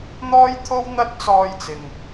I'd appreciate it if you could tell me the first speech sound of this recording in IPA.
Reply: n̪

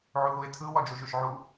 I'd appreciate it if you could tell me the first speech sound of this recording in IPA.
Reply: ʕ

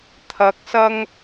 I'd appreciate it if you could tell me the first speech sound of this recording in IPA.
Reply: t̪ʰ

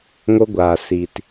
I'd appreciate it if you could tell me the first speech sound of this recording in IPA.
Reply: ŋ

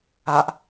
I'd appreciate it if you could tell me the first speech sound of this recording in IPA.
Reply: a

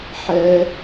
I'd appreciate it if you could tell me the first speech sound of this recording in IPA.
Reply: ħ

